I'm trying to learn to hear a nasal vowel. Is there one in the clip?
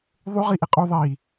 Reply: no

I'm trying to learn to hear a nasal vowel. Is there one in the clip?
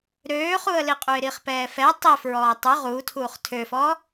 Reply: no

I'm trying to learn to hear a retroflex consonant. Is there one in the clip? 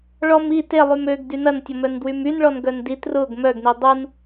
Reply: yes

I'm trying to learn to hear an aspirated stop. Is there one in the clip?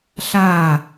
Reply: no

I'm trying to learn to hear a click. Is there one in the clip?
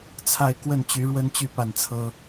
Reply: no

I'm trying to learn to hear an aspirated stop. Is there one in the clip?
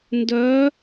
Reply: no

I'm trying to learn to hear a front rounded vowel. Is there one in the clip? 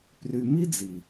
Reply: yes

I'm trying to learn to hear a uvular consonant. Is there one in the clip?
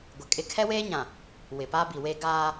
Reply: no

